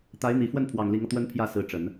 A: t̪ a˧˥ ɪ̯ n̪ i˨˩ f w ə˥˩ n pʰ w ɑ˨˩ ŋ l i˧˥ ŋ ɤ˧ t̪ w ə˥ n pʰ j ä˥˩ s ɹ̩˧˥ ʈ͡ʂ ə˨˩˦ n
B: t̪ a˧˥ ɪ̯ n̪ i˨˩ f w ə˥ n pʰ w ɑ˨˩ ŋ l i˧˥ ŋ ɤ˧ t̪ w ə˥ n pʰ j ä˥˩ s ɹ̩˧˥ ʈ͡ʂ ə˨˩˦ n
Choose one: A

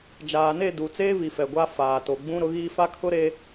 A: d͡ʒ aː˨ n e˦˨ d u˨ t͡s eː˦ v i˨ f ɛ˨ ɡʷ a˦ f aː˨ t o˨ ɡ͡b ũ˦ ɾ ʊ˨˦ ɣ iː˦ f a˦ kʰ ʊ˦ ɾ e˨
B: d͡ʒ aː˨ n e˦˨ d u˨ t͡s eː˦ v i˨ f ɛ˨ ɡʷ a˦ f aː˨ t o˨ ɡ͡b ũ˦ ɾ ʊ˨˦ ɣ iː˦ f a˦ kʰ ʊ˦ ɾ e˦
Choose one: B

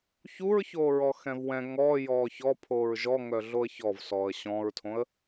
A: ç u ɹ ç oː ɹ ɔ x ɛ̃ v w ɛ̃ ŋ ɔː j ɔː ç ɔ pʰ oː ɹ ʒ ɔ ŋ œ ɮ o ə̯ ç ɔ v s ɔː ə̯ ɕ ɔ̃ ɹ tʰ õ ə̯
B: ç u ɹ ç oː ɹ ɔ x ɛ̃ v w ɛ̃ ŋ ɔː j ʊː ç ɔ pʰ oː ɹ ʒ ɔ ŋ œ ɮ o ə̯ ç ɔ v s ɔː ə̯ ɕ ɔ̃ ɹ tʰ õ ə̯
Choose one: A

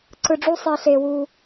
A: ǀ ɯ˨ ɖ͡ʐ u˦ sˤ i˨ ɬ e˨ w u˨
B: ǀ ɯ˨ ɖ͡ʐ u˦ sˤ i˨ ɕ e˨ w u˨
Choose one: A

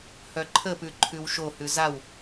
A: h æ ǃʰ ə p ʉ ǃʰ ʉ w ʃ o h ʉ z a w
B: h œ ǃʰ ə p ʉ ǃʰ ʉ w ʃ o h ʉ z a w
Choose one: B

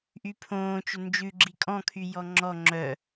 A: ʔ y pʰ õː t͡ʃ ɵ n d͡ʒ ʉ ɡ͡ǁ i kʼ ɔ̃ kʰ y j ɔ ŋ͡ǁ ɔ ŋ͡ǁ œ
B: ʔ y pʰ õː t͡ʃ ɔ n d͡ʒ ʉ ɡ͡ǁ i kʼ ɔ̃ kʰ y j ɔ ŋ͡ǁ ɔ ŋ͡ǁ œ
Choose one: A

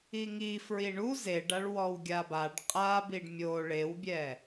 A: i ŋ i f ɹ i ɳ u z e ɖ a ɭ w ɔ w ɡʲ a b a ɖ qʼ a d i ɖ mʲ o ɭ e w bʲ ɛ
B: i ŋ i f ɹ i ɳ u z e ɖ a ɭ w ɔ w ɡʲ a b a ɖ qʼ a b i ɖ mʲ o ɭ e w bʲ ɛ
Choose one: B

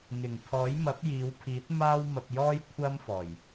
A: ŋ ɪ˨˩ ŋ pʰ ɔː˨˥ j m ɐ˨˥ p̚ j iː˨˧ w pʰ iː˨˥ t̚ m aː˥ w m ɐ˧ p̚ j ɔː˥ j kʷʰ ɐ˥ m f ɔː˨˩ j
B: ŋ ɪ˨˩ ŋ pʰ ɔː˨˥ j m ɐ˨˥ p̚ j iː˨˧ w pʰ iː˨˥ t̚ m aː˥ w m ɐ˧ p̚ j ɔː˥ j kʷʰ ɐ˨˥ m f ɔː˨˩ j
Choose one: A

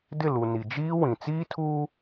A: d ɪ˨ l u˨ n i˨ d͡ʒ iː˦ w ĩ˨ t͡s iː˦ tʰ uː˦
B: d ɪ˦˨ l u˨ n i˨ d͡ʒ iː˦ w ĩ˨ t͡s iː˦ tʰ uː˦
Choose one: B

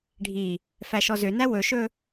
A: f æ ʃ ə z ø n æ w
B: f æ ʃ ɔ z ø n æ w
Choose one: B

